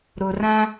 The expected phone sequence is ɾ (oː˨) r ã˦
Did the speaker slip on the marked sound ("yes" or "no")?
yes